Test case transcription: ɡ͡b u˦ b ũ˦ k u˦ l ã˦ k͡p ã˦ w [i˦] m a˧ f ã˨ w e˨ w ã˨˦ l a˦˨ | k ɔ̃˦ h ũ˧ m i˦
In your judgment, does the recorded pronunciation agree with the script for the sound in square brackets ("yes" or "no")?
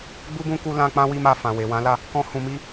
yes